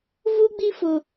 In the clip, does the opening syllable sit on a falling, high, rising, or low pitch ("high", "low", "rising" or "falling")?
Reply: high